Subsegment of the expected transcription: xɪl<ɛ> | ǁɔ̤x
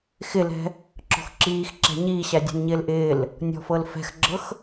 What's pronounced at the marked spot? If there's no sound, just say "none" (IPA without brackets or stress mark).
ɛ̤